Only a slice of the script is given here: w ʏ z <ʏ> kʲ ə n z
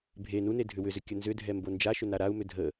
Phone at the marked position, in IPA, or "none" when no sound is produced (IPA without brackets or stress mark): ʏ